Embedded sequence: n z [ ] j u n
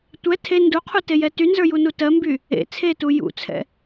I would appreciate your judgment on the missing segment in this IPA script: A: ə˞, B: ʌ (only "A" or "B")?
A